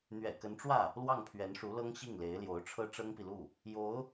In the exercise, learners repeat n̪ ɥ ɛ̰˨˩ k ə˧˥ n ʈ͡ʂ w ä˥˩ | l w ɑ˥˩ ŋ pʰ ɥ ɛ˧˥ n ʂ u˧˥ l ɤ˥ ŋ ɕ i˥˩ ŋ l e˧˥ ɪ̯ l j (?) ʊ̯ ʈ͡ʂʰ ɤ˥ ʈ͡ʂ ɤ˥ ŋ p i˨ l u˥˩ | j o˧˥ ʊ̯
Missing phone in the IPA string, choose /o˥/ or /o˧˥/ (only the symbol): o˧˥